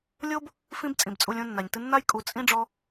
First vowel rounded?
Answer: yes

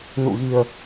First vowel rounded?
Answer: yes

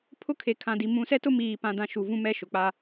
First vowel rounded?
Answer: yes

